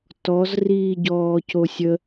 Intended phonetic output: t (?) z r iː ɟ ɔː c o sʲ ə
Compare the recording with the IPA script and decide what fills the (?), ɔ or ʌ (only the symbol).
ɔ